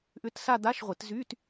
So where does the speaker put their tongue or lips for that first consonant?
throat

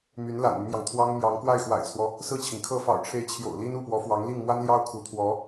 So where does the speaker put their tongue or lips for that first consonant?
lips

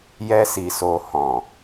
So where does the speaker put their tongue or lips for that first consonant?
palate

